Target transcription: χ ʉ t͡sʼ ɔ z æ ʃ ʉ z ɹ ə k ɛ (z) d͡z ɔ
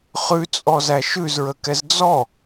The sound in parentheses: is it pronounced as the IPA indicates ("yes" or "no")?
yes